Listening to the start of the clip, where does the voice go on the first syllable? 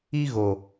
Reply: high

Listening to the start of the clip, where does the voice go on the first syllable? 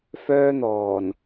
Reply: high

